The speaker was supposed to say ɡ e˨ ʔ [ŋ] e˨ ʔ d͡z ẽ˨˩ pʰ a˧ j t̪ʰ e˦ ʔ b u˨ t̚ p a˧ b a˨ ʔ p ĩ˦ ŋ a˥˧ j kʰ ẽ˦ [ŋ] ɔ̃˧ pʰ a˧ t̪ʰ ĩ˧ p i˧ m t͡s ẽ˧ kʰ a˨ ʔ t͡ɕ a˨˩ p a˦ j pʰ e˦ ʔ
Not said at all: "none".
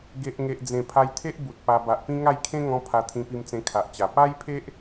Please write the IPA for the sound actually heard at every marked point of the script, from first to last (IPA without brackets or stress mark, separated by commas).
ŋ, ŋ